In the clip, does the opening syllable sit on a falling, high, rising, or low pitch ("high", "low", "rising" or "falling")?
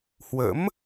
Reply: rising